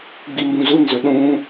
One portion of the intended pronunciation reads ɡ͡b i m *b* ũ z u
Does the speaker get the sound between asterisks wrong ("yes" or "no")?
no